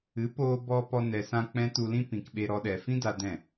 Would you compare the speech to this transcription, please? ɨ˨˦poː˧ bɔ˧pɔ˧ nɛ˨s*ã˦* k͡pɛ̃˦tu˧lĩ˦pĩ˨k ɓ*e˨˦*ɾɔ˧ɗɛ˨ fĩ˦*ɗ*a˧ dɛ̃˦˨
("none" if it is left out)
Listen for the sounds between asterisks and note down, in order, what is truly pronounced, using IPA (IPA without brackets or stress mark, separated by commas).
ã˧, e˧, d